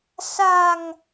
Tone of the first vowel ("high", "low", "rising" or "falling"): low